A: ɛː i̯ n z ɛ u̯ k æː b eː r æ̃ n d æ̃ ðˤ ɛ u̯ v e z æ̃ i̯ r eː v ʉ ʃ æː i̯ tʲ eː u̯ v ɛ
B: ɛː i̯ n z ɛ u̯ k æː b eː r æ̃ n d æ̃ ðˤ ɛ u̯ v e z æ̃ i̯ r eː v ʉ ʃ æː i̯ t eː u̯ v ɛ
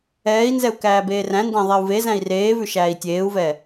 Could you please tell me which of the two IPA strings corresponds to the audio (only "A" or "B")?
A